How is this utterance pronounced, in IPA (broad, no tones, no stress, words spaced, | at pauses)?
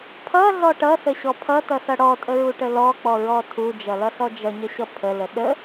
pʰʌɮɔ ʈʌsəɕɔ pʰʌtʌsʌ ɽɔtʼəɹuʈə lɔk͡pɔɹɔ tʰud͡ʒʌlʌɬɔ d͡ʒʌɲəɕʌ pʰələ ɗə